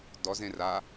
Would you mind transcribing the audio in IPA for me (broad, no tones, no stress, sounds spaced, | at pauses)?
d ɔ z ẽ r a